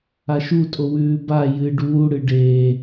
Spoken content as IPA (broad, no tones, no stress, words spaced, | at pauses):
aʃutʼo wʉːba jɨ ɖuː ɽɨɖeː